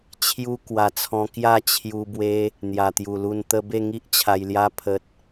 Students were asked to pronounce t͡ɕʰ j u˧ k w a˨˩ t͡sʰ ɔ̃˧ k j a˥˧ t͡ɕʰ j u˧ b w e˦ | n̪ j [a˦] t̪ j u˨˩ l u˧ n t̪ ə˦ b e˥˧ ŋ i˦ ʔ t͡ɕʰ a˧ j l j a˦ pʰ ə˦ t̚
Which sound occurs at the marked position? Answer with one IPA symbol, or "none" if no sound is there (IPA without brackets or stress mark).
a˨˩